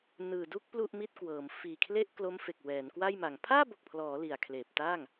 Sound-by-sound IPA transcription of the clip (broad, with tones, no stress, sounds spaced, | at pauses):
n ɯː˨˩ d u˥˩ k̚ p l u˥˩ ʔ m i˥˩ t̚ k w ɤː˩˦ m f iː˨˩ kʰ l e˥˩ ʔ k l o˦˥ m f e˨˩ k̚ w ɛː˩˦ n k w a˥˩ j m a˩˦ ŋ pʰ aː˥˩ b o˨˩ k̚ pʰ l ɔː˩˦ l i˨˩ a̯ kʰ l eː˨˩ p̚ t aː˥˩ ŋ